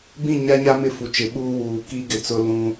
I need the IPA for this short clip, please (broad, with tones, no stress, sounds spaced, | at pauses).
b ĩ˦˨ ɲ a˦ ɲ a˦ m ɪ˦ f u˨ t͡ʃ ɪ˨˦ ɓ uː˦ w uː˨ k i˦ ɡ ɪ˨ t͡s ʊ˦ l ũ˦